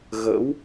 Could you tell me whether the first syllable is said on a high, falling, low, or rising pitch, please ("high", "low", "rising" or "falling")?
rising